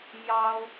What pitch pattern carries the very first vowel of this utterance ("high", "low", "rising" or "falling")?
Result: high